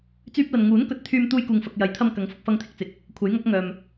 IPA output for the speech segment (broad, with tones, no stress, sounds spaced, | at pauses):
t͡s yː˧ p̚ l ɐ˨ n ŋ uː˨˥ n k ɵ˨˥ t̚ t̪ʰ yː˧ m t̪ uː˥ j k uː˧ ŋ f ɐ˧ k̚ j ɐ˨˥ j t̪ʰ ɐ˧ m k ɐ˨˥ ŋ f ʊ˧ k̚ f ɐ˧ ŋ t̪ʰ ɪ˨ k̚ t͡s ɪ˨˥ k̚ | kʷʰ ɐ˨˥ j ŋ ɐ˨˥ k̚ ŋ œː˨ m